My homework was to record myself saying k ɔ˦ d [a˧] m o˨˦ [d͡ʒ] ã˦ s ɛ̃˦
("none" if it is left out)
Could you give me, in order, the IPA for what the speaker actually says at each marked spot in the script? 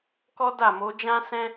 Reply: a˦˨, d͡ʒ

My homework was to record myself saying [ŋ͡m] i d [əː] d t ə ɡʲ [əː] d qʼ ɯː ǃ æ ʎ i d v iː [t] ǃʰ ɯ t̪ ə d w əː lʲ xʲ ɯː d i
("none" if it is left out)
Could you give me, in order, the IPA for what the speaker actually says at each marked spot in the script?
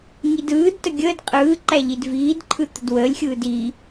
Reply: ŋ, ɯː, əː, d

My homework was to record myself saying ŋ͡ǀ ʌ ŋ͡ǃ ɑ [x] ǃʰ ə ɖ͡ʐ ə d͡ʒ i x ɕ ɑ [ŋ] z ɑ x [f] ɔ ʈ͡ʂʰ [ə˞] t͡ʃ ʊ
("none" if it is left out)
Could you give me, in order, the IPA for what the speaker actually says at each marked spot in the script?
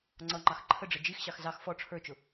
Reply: x, x, f, ə˞

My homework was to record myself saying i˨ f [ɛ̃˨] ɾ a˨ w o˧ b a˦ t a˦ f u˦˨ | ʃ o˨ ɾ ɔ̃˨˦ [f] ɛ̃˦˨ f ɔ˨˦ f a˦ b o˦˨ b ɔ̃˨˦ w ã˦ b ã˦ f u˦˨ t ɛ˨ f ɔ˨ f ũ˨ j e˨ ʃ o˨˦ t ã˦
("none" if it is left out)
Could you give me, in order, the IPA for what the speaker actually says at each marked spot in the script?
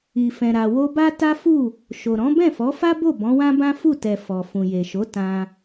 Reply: ɛ̃˨, b

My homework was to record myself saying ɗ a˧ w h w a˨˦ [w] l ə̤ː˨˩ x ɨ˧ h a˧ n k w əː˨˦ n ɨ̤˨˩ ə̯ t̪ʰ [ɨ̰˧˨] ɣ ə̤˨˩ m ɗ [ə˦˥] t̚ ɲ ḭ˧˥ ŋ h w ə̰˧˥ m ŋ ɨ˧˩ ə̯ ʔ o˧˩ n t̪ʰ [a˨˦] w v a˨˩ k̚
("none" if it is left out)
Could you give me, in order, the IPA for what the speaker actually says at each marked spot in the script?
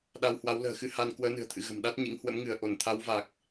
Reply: w, ɨ̰˧˨, a˦˥, a˨˦

